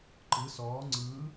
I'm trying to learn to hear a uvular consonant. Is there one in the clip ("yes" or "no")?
no